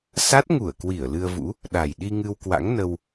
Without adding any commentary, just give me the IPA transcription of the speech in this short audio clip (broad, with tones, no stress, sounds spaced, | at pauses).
s a˦˥ t̚ ŋ u˧˩ ə̯ k w i˧˩ ə̯ l ɨ˧ ə̯ v ṵ˧˥ | ɗ a˨˩ j ɗ i˧ ŋ ɨ˧ w k w a̰˧˥ ŋ n ə˧ w